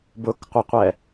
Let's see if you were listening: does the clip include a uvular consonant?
yes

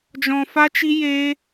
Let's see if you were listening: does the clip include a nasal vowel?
yes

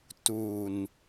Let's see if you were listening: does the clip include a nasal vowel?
no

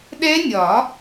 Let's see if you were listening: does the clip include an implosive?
yes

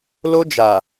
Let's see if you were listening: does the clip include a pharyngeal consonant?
no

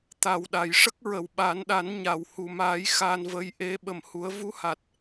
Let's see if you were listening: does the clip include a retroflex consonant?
yes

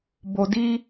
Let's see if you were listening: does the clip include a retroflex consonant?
no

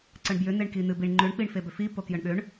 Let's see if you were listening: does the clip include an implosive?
yes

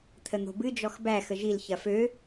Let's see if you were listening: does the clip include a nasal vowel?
no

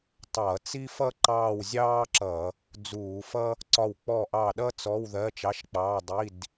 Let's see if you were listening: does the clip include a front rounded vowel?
no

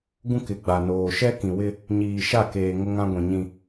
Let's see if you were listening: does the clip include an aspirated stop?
no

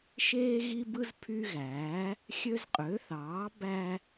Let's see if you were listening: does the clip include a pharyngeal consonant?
no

